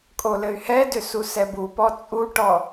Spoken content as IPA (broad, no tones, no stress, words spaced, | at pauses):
kʼolɘy̯hɛdʏ susɛbupɔ t͡sʼuʈɔ